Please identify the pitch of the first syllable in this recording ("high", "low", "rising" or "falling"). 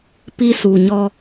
high